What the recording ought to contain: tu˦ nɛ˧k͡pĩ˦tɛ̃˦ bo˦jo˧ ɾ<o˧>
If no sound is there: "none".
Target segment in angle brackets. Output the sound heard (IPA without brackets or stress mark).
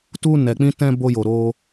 o˦